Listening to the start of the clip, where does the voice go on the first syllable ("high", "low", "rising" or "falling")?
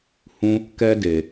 high